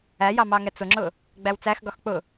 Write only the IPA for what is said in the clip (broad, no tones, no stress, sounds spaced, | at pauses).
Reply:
æ j ɑ m ɑ ŋ ɛ t͡s ʊ ŋ͡ǁ ʊ | ɡ͡b æ w t͡s æ x ɡ ɒ x k͡p ʊ